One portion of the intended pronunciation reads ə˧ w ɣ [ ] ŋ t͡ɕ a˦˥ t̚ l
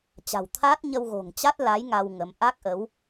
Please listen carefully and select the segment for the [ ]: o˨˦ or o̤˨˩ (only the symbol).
o̤˨˩